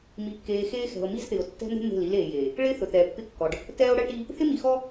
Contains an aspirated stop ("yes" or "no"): no